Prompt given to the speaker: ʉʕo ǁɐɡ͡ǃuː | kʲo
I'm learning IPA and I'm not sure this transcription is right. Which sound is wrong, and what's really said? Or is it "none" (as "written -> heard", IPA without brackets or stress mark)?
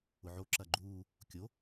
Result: ʉ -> ʊ